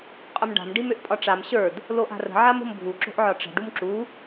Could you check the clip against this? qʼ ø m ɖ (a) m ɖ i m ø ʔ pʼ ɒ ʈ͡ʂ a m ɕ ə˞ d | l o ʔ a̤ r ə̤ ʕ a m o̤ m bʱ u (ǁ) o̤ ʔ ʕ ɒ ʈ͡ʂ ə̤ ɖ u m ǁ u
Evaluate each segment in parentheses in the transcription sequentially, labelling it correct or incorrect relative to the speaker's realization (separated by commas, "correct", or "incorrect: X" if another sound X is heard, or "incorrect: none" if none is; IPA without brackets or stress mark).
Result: incorrect: a̤, correct